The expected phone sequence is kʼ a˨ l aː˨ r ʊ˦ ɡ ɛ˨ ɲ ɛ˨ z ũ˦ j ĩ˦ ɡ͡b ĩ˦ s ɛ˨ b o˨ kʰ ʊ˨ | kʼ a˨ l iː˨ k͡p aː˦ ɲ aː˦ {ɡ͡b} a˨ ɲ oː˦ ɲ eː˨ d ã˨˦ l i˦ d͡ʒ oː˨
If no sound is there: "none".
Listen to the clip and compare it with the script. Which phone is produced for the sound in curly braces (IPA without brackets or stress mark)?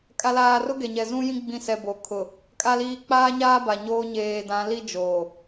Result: b